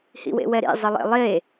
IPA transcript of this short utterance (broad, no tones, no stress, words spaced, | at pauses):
hḭwḛwɛɾḭ zˤɘlˠḛlˠe